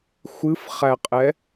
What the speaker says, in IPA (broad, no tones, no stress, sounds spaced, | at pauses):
xʷ ɨ f χ æ qʼ ɛ